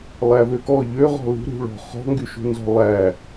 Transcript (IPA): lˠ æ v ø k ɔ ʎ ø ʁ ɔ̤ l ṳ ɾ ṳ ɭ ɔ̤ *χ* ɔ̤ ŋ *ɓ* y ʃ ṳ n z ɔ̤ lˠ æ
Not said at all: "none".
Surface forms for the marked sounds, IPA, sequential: χ, ɡ

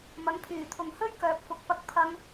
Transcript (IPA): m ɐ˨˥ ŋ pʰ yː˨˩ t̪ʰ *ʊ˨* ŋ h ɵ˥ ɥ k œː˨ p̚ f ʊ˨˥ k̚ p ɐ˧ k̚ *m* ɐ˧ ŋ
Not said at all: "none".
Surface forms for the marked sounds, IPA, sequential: ʊ˨, pʰ

